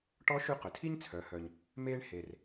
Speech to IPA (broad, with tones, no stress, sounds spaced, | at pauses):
ʈ ɔ˧˥ ʃ ʉ˧ q ɵ˩ tʰ i˥ ɲ t͡sʰ œ˩˧ h œ˩ ɲ | m eː˧ ɳ h e˩ r